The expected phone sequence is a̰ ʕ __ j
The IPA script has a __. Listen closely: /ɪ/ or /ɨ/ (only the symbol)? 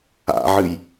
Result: ɨ